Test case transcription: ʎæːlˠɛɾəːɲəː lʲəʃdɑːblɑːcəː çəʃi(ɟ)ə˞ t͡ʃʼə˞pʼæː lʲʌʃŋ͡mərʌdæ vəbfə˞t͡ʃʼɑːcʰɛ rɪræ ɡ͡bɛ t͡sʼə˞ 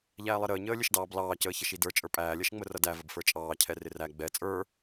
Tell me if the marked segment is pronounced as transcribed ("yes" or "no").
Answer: no